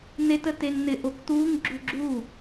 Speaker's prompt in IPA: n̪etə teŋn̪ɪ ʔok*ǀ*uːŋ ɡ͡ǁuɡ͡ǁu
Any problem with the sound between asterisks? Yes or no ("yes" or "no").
yes